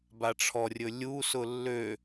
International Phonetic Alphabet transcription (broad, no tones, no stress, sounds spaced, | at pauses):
b a ʈ͡ʂʰ ɔ rʲ ɵ lʲ u s ʊ lː ø